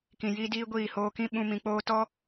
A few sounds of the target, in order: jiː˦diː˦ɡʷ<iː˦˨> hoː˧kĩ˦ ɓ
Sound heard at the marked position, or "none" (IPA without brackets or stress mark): iː˦˨